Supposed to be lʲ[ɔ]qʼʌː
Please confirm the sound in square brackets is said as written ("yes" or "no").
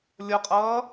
no